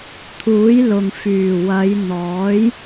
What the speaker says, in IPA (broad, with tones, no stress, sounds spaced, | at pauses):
t̪ʰ uː˨˥ j l ʊ˨ ŋ f yː˨˩ w ɐ˨˧ j n̪ ɔː˨˥ j